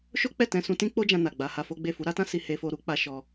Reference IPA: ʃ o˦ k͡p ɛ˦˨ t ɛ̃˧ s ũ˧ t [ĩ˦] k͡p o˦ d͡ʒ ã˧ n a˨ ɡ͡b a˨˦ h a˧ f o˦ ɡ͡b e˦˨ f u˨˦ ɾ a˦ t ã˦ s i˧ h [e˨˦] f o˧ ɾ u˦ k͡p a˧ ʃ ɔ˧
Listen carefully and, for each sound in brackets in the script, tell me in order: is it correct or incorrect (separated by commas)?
correct, incorrect